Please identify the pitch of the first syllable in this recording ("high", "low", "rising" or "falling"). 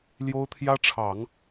high